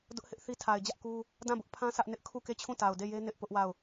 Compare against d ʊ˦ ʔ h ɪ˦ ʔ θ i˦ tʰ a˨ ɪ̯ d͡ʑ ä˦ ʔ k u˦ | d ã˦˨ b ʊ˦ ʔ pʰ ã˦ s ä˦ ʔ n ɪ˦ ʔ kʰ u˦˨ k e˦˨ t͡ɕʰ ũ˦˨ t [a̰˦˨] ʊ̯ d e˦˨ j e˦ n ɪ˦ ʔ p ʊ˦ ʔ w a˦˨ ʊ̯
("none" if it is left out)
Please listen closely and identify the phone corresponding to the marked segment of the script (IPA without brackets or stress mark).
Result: a˨